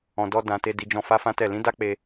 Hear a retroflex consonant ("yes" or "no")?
no